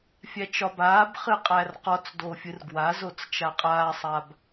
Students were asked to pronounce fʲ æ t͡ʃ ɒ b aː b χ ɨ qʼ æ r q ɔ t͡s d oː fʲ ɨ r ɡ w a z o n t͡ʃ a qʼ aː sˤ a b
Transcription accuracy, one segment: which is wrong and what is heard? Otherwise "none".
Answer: n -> t͡s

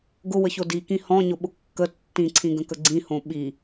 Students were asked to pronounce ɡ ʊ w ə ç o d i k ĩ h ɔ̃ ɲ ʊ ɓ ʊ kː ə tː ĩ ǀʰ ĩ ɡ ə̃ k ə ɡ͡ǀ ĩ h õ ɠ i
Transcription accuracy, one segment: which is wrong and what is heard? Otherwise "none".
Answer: ɠ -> ɓ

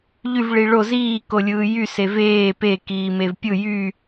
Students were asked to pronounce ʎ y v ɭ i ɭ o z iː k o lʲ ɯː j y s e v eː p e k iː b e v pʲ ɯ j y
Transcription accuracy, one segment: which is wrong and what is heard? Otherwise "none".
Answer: b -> m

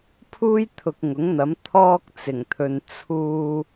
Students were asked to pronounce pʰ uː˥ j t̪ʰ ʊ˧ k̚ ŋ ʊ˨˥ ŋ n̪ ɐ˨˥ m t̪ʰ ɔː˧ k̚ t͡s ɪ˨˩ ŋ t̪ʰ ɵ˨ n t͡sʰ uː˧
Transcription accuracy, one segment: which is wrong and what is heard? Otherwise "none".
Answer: none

